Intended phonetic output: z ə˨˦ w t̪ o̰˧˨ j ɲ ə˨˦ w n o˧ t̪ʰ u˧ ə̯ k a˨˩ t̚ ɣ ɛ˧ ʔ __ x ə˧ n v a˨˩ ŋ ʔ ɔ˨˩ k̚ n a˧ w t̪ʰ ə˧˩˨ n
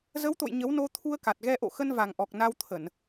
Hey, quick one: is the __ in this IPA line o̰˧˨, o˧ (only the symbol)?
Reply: o̰˧˨